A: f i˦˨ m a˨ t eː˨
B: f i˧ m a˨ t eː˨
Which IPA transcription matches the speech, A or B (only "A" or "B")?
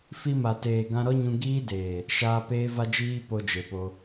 B